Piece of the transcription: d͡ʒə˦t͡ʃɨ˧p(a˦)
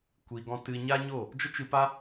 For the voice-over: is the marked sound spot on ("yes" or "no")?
yes